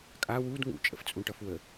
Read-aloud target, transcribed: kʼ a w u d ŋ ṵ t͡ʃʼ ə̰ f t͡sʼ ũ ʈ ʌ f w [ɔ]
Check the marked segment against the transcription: incorrect: ə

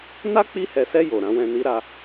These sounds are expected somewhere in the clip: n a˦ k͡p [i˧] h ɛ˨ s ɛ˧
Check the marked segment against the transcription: correct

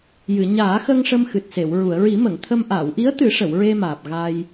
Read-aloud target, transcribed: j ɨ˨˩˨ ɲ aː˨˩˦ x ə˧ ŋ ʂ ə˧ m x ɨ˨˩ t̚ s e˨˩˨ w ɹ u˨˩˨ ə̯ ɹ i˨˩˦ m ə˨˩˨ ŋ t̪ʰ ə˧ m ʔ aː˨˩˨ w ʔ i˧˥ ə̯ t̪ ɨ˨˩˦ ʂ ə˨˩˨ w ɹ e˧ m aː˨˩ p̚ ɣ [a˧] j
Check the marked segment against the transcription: correct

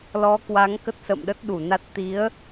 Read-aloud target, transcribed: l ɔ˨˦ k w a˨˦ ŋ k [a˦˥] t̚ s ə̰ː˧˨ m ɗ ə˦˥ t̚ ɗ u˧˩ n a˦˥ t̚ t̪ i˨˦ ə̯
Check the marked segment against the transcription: incorrect: ə˦˥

